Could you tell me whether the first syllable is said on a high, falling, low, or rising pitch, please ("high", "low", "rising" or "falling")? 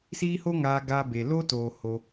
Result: high